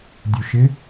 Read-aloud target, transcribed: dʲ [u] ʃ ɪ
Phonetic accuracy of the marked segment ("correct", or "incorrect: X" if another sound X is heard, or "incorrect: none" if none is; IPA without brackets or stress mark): correct